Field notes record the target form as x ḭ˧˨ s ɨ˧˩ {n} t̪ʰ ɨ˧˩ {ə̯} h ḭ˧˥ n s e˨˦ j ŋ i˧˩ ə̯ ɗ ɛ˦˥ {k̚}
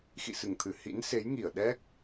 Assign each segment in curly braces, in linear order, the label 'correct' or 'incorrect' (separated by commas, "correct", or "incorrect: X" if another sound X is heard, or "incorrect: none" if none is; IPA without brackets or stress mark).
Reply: incorrect: ŋ, incorrect: none, correct